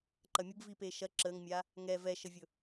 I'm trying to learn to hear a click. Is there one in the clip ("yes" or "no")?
yes